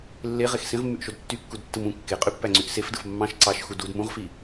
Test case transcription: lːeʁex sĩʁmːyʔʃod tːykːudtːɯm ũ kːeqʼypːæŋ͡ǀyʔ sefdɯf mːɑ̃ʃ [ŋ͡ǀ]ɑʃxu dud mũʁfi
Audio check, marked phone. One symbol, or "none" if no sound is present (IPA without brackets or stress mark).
ǀ